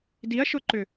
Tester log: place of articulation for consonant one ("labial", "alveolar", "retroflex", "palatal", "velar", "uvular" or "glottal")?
alveolar